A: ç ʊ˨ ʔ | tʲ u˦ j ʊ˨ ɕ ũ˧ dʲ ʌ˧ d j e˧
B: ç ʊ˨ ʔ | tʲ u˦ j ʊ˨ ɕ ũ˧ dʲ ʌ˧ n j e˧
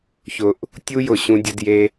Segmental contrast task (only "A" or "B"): A